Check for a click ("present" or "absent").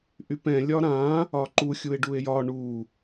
present